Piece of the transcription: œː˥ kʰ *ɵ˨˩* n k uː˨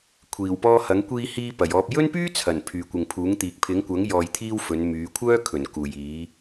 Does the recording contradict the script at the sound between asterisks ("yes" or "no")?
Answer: no